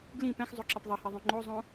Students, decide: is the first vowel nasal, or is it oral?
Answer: nasal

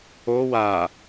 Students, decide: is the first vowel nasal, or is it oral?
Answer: oral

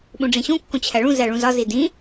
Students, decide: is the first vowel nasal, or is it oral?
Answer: nasal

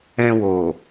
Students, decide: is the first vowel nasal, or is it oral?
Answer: nasal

